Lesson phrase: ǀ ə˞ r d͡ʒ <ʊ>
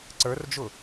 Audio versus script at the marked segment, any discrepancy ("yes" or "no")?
no